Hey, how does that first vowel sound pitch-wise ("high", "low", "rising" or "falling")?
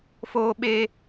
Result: high